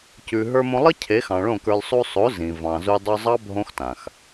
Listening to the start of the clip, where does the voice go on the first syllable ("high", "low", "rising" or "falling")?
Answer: low